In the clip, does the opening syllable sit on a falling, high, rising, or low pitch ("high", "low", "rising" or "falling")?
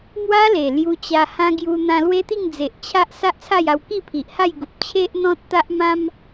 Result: high